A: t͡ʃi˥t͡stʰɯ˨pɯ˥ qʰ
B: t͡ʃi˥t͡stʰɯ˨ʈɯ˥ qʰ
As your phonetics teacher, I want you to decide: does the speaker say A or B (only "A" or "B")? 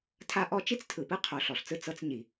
A